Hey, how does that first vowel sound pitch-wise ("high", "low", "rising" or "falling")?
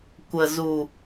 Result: low